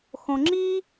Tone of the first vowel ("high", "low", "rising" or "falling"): low